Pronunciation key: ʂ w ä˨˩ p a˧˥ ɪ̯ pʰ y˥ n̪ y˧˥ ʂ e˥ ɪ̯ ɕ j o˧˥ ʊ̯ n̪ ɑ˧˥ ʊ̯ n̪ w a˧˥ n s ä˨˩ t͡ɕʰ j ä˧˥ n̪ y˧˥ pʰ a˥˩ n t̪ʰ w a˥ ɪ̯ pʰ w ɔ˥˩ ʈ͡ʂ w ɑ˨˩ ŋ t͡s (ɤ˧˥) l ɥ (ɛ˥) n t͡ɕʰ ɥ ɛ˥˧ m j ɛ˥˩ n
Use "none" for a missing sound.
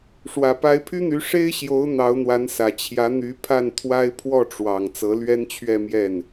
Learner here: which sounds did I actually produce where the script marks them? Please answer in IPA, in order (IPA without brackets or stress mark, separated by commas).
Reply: ɤ˧˥, ɛ˥